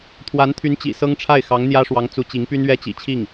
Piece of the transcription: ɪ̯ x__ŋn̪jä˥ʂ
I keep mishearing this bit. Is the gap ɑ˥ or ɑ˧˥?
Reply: ɑ˧˥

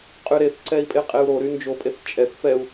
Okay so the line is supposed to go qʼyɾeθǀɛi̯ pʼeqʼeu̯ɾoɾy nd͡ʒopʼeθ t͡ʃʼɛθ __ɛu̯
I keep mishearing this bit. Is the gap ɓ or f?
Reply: f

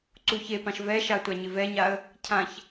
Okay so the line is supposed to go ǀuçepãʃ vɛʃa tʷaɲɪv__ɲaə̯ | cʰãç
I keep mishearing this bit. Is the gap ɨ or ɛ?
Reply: ɛ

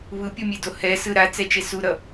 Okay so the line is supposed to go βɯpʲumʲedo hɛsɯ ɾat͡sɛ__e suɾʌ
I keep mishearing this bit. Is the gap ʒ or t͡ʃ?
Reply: t͡ʃ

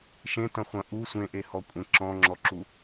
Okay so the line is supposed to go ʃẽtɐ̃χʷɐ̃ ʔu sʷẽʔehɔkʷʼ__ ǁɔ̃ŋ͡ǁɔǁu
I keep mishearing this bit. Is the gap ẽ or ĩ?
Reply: ẽ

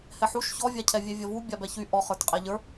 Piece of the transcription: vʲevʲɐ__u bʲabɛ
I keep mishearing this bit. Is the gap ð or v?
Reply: v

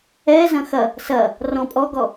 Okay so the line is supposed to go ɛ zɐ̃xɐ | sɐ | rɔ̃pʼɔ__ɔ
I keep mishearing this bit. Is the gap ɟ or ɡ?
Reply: ɡ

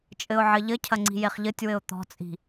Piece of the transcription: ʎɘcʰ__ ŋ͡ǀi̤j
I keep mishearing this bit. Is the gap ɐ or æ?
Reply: ɐ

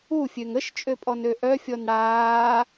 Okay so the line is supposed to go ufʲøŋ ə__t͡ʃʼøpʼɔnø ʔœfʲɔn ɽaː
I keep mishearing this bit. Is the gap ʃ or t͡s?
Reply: ʃ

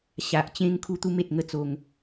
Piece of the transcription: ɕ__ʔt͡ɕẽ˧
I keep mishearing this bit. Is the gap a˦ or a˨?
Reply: a˨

